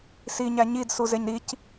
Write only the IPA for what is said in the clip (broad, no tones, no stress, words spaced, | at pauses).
siɲæ ɲidsuzeɲ ɾic